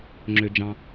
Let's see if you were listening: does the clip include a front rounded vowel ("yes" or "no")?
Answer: yes